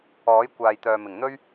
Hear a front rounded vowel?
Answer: yes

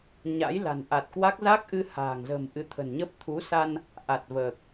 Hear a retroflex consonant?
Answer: no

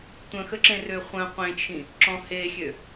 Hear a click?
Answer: yes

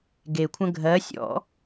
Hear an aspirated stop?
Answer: yes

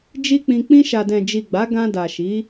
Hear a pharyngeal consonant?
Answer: no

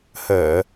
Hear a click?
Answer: no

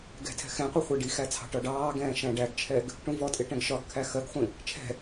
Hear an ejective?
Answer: yes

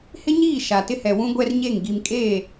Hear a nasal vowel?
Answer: yes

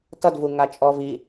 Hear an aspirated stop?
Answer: no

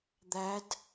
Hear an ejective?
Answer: no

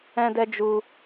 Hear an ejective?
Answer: no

